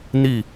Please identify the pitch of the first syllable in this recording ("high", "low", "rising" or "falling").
falling